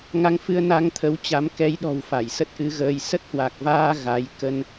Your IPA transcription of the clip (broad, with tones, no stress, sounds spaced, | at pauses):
ŋ a˧ ŋ f ɨ˧ ə̯ n a˧ ŋ t̪ʰ ə˨˦ w t͡ɕ a˨˦ m k ɛ˨˦ j ɗ ɔ̤˨˩ w f a˧˩ j s ə˦˥ t̚ ʔ ɨ˧ ɣ əː˧ j s ə˦˥ t̚ h w a˨˩ k̚ v aː˧ ɣ a˨˦ j k ə˧ n